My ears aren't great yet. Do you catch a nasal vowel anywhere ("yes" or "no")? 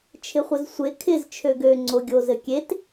no